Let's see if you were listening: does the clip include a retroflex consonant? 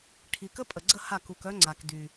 yes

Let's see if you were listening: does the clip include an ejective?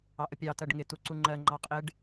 yes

